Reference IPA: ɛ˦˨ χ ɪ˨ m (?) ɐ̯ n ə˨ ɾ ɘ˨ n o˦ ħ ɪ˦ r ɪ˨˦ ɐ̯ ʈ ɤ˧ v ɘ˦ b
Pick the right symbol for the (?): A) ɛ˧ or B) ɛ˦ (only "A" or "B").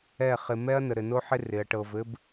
B